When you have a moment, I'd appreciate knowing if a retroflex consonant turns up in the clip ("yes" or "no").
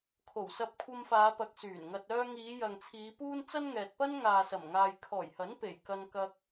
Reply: no